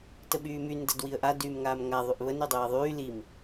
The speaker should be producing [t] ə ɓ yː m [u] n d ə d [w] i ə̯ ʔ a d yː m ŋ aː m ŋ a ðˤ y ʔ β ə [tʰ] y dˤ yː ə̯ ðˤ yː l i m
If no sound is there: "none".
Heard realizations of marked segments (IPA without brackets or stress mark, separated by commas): t, y, w, n